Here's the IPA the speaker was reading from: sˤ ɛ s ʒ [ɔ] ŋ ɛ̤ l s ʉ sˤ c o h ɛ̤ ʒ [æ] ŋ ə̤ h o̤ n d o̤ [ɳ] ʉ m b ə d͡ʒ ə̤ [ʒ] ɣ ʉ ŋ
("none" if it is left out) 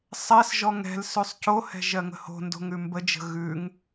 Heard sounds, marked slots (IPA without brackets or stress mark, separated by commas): ɔ, ɜ, ŋ, none